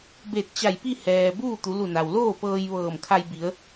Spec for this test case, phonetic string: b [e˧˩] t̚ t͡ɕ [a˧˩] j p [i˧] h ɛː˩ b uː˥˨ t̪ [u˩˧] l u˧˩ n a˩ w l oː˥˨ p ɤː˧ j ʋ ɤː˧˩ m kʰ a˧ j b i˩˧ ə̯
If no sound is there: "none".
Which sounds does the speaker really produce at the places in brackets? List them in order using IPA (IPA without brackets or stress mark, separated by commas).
e˧˩, a˧˩, i˥˨, u˩˧